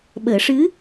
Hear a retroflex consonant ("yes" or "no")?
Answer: yes